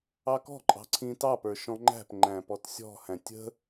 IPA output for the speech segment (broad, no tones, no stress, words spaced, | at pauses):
ɑkɔ̤ǃʼɑ̤ ǀʰĩtɑpə˞ ʃɔ̃ŋ͡ǃæ̤pŋ͡ǃæ̃ pɔtsʲɔ̤hæ̃ tʲə̤